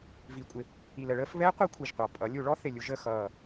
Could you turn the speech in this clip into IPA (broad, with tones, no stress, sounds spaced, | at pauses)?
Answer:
v i˧˩˧ kʷʼ ɪ˨˦ | i˨˩ l ə˧˩˧ ɭ əː˨˦ f β ɛ˦˥ qʷ ɜ˦˥ kʷʰ i˨˩ ʒ qʷ ɑ˨˩ pʼ ʌ˨˦ lʲ u˧˩˧ ɭ ɔ˦˥ θ ɪ˨˩ lʲ u˧˩˧ ʒ ə˨˩ x ʌː˨˩